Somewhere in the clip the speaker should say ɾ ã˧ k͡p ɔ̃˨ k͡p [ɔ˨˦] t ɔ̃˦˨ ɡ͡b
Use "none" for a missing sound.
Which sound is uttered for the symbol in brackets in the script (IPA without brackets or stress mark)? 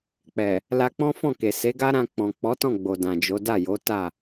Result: ɔ˨˦